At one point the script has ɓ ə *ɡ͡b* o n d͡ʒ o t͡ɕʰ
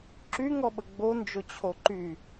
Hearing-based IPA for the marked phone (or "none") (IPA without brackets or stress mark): ɡ͡b